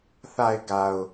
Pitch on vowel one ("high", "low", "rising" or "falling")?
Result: low